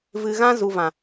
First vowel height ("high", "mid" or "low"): high